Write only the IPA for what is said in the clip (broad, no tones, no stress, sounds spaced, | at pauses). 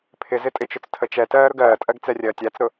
pʰ ɪ z ɪ tʼ ɪ t͡ʃ ʊ t͡s tʰ ə t͡ʃ ɛ t ɜː ɾ ʊ ɡ ɜː tʼ ɜ ɡ t͡s ɛ rʲ ɜː tʲ æ t͡s ɾ ʊ